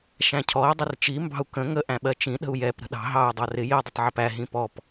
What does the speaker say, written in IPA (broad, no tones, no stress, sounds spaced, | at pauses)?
ʃ æ̃ cʰ ɔ i̯ dˤ ɪ r t͡ʃ i m b ɑ̤ u̯ k ə̃ ŋ ə ʔ æ̃ ɓ ɜ t͡ʃ ĩ ɗ ə̤ u̯ j ɛ p ɾ ə̤ ɗ ɑ̤ ɦ ɑ u̯ dˤ ɑ r ɪ j i dˤ ɪ tˤ ʕ ʌ p æ ɦ ĩ p ɔ p